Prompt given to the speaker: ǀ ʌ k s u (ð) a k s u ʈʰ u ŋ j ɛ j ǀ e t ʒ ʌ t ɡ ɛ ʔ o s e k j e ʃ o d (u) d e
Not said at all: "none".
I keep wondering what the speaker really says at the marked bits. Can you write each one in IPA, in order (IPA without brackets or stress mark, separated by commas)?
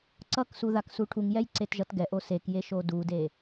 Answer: ð, u